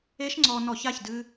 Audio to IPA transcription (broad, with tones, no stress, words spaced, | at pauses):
e˦˥ʃŋ͡ǀɔ˧ nɔ˧˩˧ça˩˧˩çdɨ˧